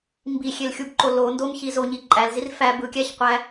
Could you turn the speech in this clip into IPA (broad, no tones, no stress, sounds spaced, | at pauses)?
m b i xʲ e l xʲ u b ǃ o l o n d o m ç i z o ɲ i ǃʼ æ l z i r f æ b ɯ kʲ æ ç qʷ æ